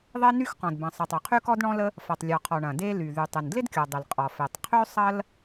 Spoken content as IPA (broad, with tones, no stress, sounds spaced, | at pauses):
ðˤ e˥ n y˥ x q ɔ̃˩ d b ɐ̃˩ sˤ e˩ tˤ ø˩ qʰ y˥ k ɔ˥ d ɳ ɔ̃˥ l ə˥ | f ɐ˩ tˤ lʲ ɔ˩ qʰ ɔ˩ ɳ ɐ̃˩ d e˥ l y˩ ð y˩ tˤ ɪ˩ n d l ɪ˥ d kʲ ɔ˩ dˤ ɪ˩ l qʼ ɔ˩ f e˩ tˤ qʰ ø˥ sˤ ɐ˥ l